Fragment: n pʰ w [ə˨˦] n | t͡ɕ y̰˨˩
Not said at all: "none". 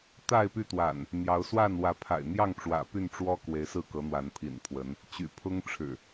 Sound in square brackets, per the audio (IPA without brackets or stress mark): ə˨˦